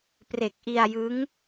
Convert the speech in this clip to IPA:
pre˨˩k̚ʔi˧a̯jɯ˦˥ŋ

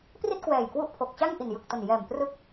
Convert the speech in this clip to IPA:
pri˥˩t̚kwɛː˨˩jkwu˦˥ʔpʰo˨˩k̚ t͡ɕa˥˩ŋʔi˨˩njɯ˨˩k̚to˨˩n jɛː˨˩mprɯ˦˥k̚

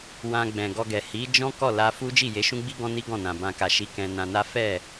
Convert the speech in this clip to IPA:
wã˧ɡ͡bɛ̃˨ɡɔ˧ɡɛ˨ hi˨˦d͡ʒɔ̃˦ kɔ˦˨la˧fu˦ d͡ʒi˦˨je˨˦ʃũ˦ɡ͡bi˦ ɡɔ̃˦ni˦ɡɔ̃˦˨nã˨ bã˨ka˨ʃi˨˦ kɛ̃˧nã˧na˦ fɛ˦˨

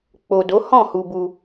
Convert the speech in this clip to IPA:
k͡po˨do˨˦ hɔ̃˦˨hu˧bu˧

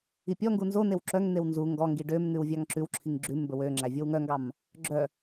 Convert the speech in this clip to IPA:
ipʲɔŋɡu nzonew ǁœŋn̪ew nzu ŋɡɔŋɡi ɖømn̪ʉw vʲɑŋǁʉwǁʰiŋ ɡ͡ǁʉm bɵwøŋ͡ǁæ vʲowŋœŋɡɑm | ɡ͡ǁœ

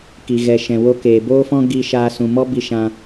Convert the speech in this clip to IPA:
ki˨ɣɛ˨ʃɛ̃˨ wo˧keː˨boː˦fɔ̃˦ ɡi˧ʃaː˧ sũ˨mɔ˦ bi˧ʃã˧

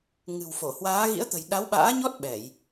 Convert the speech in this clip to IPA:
ŋɨ̤˨˩wfo˧˩ hwaː˨˦ ɣḭ˧˥ə̯t̪ə̤˨˩j ɗa˨˦wɓa̰ː˧˥ɲɔ˦˥t̚ ɓɛ˧˩˨j

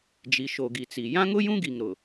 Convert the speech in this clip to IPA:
d͡ʒi˨ʃo˨ɡi˨t͡si˨ jã˦ŋʊ˦jũ˦ɡi˨ŋ ɾʊ˨

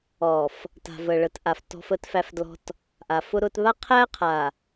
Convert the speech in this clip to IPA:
ɔ˨f | ta̤˨və˨ɭə˨˦tʔa˨f tɔ̤˦fə˦tfæ˦fdlɔ̤˦t | ʔa˨fʊ˦ ɾʊ˦t βa˦qʰæ˦qʰa˨

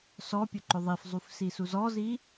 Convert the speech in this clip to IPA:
sɔpʲɵǃɵ ðˤifzˤufsisu zɔzi

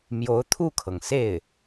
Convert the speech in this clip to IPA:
mjo˧˥ʊ̯t̪ʰu˥˩kʰɤ˩ŋ se˥˩ɪ̯

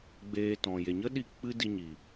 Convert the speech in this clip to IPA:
ɡ͡beː˧tɔ̃˨ je˨ɲə˦ɗi˧ k͡pɨ˦ di˧ɲi˨

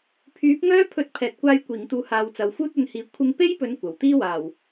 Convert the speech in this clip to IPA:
pʰyː˨˥p̚ŋœː˥pʰɵ˧t̚ pʰɛː˨t̚kʷaː˧j kʷiː˨˩ŋt̪uː˨˧haː˨w t͡sɐ˨wfuː˥t̚ɵ˧nhiː˨˥ kʷʰɪ˧ŋpe˥jpɵ˨˧n kʷɐ˨˩w t̪iː˥waː˨˩w

